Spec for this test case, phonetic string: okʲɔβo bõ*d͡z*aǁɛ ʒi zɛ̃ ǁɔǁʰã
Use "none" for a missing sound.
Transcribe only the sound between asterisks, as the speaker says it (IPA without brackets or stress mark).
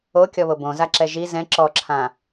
z